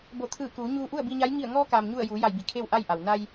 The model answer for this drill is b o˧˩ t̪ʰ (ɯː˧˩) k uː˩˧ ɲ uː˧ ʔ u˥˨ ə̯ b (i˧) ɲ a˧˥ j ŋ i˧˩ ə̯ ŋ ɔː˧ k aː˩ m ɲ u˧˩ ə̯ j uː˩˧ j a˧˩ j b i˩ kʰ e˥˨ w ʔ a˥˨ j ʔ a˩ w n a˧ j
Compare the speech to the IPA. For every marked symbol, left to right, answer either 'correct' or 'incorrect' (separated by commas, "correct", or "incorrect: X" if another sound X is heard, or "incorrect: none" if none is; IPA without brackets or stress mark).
correct, correct